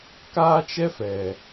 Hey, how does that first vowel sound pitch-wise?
high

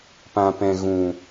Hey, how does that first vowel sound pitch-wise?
low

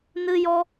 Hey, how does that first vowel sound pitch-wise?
high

